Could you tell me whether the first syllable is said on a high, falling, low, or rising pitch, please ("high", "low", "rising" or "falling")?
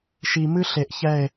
low